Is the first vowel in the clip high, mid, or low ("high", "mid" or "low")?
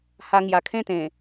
low